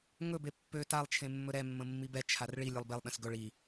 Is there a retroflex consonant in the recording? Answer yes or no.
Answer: yes